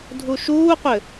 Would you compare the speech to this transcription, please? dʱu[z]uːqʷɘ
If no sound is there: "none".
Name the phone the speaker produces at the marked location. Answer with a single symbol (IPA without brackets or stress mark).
ʃ